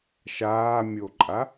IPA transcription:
ʃ aː mʲ o ǃʼ a

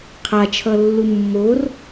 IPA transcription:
qʰ a t͡ʃʰ ʌ lː u mː o r

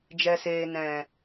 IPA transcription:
d͡ʒ ɛ˨ s eː˨ n ɛ̃˨

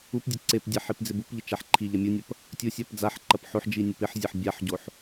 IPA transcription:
u p dʲ ɐ ǀ e p dʲ a ħ i p d͡z ɪ b u p ʎ ɪ t͡ʃ a ħ ǃʰ i ʎ ɐ mʲ u nʲ ɐ p | tʲ u sʲ a p d͡z a ħ ǃ ɐ p ħ o ħ d͡ʒ i nʲ o p ɪ ħ zʲ ɐ ħ bʲ a ħ ɟ o ħ

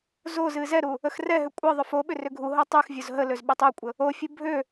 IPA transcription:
z o z ɨ z ɛ ɾ u | ə x r ɛ ɦ ʏ kʷʼ ɨ ðˤ ʏ f o ɓ ʏ r ʏ ɡʱ u ɦ o tˤ ɨ x vʲ o z ɦ ə l ø z ɓ ʏ tˤ ø kʷʼ ə | o fʲ u bʱ ø

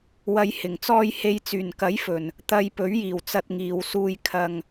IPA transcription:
w ɐ˨˧ j h ɪ˨˩ ŋ t͡s ɔː˧ j h e˨ j t͡s yː˨˩ n k ɐ˨˥ j f ɵ˨˩ n | t̪ ɐ˧ j p ɵ˨˥ ɥ j iː˨˩ w t͡s ɐ˧ t̚ ŋ iː˨ w s uː˧ j kʰ ɐ˨ ŋ

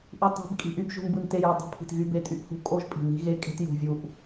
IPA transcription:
ʔ y˨ tˤ i̤˨˦ b kʼ i̤˨ ʔ y˦ b ʒ ṳ˦ n b ɯ˦ n t e˦ j o˨ dˤ e̤˦ pʰ i̤˨ t ɣ y˦ b e˦ tʼ y˦ ʔ h ṳ˦ kʼ o˦ ʒ pʼ i̤˨ n i̤˦ ɣ e˦ kʼ e̤˦ t j ṳ˨ vʲ u˨ ʔ

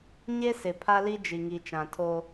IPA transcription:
ɲ e˦ s ɪ˨ pʰ a˦ l i˦ d͡ʒ i˨ ŋ i˨ t͡ʃ ã˨ tʰ o˦

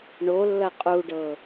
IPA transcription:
ɳ o lː ɐ qʼ u ɖ ɤ

